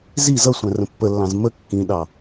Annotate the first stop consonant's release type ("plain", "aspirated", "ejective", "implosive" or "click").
plain